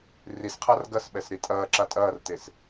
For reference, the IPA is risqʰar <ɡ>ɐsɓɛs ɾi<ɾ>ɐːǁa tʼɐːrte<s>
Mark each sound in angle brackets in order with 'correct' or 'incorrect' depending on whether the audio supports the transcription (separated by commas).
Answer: correct, incorrect, correct